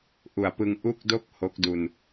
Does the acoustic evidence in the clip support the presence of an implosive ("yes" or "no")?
no